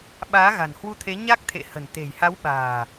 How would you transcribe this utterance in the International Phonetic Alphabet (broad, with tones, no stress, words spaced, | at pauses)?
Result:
ɓaː˨˦ɣa̤˨˩nhwu˧t̪ʰe˨˦ ɲa˦˥k̚t̪ʰḛ˧˨ hə̤˨˩nt̪e̤˨˩j ha˨˦wɓa̤ː˨˩